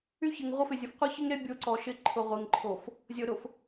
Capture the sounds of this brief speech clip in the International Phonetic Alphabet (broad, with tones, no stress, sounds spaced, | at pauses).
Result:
y˦ ç ɪ˨ ŋ ʁʷ ə˦ f ɪ˨ zʲ ʊ˨ f qʷ ɪ˦ ç ɪ˦ ŋ ɾ e˦ bʲ o˦ ǀ ɔ˨ ʃ ɪ˦ ǃʰ ʊ˨ ʁʷ e˨ ŋ ǃʰ o˨ f | zʲ o˨ ɾ ʊ˨ f